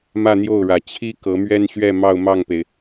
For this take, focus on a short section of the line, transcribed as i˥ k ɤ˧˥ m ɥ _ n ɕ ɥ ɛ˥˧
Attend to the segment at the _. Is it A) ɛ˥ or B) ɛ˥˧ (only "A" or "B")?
A